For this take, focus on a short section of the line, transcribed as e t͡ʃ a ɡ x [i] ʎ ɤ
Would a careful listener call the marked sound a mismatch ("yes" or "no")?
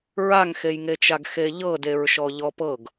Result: yes